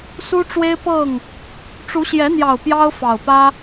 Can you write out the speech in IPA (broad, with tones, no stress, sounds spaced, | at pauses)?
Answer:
s u˦ ʈ͡ʂ w e˦ ɪ̯ p ɤ˥˨ ŋ | ʈ͡ʂ u˨˦ ɕ j ɛ˨˦ n̪ j ɑ˨˩ ʊ̯ p j ɑ˦ ʊ̯ f ɑ˨˩ ʊ̯ p ä˦